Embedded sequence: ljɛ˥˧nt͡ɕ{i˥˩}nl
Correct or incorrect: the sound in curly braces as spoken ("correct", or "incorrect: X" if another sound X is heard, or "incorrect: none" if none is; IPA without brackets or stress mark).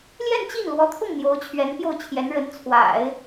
correct